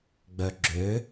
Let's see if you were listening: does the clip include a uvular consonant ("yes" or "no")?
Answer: no